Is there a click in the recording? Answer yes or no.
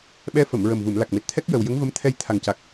no